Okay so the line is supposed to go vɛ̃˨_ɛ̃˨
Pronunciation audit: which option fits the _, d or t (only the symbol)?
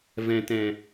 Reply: t